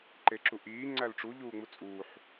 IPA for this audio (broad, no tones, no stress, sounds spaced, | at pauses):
ǃ e ǁ u ʔ iː ŋ͡ǀ æ l ʈ͡ʂ u ʎ uː ŋ͡m u t͡sʼ uː ħ